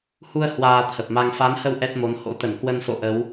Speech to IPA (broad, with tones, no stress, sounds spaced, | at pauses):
h u˧ ə̯ h w aː˧ t̪ʰ ə˨˩ p̚ m a˧ ŋ f a˨˦ n h ə˧ w ʔ ɛ˦˥ t̚ m o˨˦ n h o̰˧˥ t̪ ə˧˩ n k w ə˧ n s o̰˧˨ ʔ ə˨˦ w